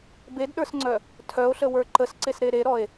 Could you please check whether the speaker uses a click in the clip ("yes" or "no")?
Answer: yes